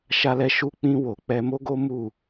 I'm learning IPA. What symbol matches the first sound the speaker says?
ʃ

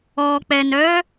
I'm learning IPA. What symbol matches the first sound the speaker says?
ɔ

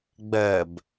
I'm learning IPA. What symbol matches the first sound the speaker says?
ɡ͡b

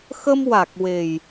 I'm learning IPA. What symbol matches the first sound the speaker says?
x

